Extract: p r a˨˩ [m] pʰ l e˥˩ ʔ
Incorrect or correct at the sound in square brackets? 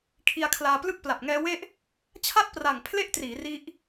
incorrect: ŋ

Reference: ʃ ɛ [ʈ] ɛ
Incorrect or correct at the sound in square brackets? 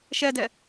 incorrect: d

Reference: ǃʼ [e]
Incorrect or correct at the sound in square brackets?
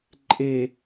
correct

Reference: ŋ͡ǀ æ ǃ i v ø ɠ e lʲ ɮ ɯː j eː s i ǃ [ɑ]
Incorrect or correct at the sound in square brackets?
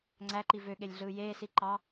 correct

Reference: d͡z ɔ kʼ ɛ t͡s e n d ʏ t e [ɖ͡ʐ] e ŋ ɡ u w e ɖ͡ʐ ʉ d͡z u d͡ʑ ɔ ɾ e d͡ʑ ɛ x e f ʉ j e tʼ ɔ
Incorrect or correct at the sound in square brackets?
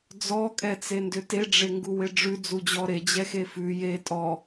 correct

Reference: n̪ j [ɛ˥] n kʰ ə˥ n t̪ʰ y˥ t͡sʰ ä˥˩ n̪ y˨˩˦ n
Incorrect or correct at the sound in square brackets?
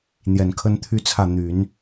incorrect: ɛ˨˩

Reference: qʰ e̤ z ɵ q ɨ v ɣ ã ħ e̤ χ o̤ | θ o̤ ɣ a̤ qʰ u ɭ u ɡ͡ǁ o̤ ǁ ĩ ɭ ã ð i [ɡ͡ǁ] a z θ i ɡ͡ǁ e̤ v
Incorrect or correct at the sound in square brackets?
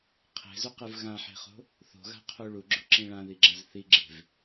correct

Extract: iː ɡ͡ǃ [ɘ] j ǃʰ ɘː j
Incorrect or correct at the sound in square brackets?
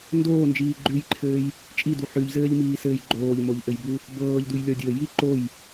incorrect: ʉ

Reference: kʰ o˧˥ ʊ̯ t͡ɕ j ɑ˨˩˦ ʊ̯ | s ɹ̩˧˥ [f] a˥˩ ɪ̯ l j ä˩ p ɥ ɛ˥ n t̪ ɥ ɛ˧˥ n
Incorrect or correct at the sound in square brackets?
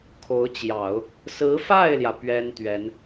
correct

